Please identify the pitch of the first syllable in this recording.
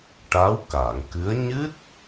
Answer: rising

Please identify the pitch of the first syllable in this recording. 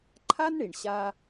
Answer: high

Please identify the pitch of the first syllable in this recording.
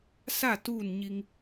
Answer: falling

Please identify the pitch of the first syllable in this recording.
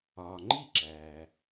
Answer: low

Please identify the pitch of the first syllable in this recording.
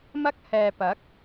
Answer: high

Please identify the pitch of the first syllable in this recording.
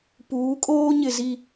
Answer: rising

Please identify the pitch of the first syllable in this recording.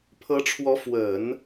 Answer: rising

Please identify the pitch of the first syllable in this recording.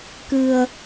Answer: low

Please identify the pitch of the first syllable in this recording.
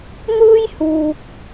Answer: high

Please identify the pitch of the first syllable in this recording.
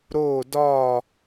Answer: falling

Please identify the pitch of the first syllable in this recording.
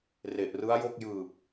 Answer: low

